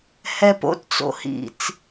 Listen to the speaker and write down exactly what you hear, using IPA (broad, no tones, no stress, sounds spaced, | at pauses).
h ɛ p o̰ t t͡s o̰ h ḭ t͡s